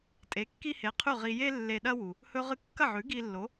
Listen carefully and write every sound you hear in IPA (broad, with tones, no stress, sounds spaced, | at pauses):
tʼ e˩˥ kː i˥ h e˩˥ qʰ ʉ˥˩ ʁ i˧ j e˥ lː e˧ ɗ ɐ˥ w u˩ | h ɵ˧ ʁ ɨ˧ kː ɐ˥˩ ʕ ʉ˩˥ ɡ i˧ lː o˩˥